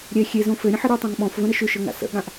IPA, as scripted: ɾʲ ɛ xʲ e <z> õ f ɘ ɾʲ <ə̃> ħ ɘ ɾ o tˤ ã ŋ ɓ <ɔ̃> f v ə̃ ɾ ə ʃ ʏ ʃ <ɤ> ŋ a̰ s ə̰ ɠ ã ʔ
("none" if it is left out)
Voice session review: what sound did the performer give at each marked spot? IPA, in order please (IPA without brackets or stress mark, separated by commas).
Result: z, ə̃, ɔ̃, ɤ